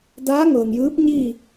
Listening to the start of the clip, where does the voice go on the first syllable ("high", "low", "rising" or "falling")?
rising